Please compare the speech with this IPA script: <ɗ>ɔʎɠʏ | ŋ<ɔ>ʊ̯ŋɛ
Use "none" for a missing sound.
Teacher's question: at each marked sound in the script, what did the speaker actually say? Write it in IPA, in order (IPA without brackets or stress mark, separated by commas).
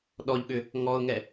ɗ, ɔ